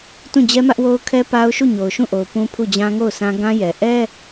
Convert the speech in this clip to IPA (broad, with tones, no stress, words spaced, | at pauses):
tũ˦˨d͡ʑɛ˦mä˦ʔwo˦ʊ̯ kʰɛ˦ pa˦ʊ̯ ʃu˦˨ɲo˨ʊ̯ʃũ˦˨ʔo˨ʊ̯ pũ˦pʰu˦˨d͡ʑã˦ ŋo˦˨ʊ̯sʰã˦ ɡã˦jɛ˨ ʔɛ˦